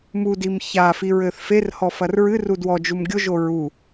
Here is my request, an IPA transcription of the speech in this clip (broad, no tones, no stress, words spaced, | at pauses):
mudim çafiɹɘθ ferhɔfɐr ɹɨru dwɔd͡ʒum ɡʲoʒo ɹu